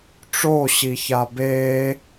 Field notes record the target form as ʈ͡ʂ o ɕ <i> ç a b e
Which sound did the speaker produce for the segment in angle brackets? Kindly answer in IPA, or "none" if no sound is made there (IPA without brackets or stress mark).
i